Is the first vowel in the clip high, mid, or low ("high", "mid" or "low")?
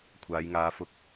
low